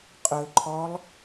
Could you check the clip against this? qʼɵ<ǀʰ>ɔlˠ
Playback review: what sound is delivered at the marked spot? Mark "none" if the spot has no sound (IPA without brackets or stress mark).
ǃʰ